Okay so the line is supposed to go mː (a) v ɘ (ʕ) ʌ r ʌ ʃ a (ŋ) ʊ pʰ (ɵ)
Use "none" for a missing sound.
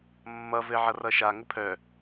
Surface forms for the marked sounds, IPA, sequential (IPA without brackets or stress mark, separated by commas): ʌ, ʕ, ŋ, œ